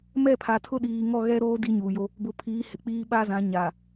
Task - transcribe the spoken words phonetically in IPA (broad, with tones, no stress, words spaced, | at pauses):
mɛ˦˨pʰa˨ tʰʊ˦ ɗiː˨ ŋɔ˦˨ɣɛ˦ɾoː˦ di˦ɲuː˨jo˦ | bʊ˨pʰiː˨˦hɪ˨k͡piː˦ ɓa˦zã˨˦ ɲa˨